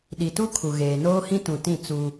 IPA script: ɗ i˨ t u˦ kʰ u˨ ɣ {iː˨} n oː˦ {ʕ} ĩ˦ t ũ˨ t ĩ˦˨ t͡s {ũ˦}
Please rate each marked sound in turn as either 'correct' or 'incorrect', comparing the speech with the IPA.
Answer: incorrect: eː˨, incorrect: h, incorrect: u˦

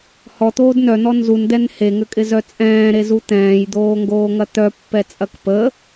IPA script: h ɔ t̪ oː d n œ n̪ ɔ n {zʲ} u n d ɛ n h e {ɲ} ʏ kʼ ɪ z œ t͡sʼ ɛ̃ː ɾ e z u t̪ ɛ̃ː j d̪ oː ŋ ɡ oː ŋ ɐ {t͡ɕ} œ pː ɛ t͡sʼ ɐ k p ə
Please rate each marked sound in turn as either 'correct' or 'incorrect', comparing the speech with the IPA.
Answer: incorrect: z, incorrect: ŋ, incorrect: t̪

